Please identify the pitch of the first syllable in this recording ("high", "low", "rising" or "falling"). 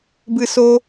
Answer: high